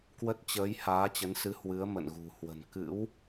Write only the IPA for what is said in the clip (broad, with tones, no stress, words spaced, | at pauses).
kwə˦˥t̚t͡ɕəː˨˦j haː˨˦t͡ɕə˨˦nsɨ˨˦ hwɨ˨˦ə̯mə̰˧˨nɣṳ˨˩ hwə̤˨˩n kɨ̰˧˥w